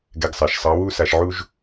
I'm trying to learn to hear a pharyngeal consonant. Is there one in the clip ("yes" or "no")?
yes